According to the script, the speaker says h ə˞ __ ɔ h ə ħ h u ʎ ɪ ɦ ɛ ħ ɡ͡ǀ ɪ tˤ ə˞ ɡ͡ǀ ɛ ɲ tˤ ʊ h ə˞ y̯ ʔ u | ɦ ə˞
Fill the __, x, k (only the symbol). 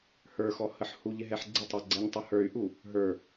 x